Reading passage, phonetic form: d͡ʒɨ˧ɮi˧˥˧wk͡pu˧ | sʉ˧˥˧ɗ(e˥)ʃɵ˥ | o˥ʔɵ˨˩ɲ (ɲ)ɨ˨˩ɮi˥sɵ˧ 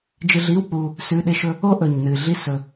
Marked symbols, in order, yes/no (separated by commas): yes, no